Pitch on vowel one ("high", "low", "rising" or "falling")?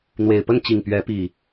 low